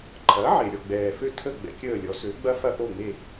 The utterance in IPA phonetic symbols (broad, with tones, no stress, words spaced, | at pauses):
ǃʰɐ˩˥ʕe˩ ɾʲɔ˥˩ɡ͡bɛː˩fø˥˩tʰə˥˩ ɡ͡bɛ̰˧kʲəː˥˩ lʲɔ˩˥sø˩˥ɡ͡bɐ˥ fɐ˥ʔo˥˩ŋ͡me˥˩